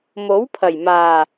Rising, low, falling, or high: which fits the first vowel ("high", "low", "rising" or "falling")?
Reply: rising